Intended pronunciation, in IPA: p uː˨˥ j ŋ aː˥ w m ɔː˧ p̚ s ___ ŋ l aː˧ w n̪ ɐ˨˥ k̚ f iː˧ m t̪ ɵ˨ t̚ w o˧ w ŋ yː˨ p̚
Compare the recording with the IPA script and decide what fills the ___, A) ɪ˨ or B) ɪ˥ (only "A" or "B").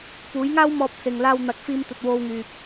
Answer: A